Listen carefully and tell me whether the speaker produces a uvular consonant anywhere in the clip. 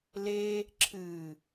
no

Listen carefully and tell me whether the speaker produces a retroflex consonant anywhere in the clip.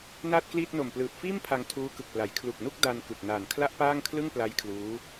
no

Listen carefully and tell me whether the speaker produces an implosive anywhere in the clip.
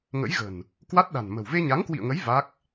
yes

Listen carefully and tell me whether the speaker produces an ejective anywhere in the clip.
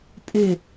yes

